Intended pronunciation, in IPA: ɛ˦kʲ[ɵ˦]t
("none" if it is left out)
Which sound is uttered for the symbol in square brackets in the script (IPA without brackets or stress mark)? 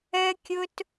ɵ˦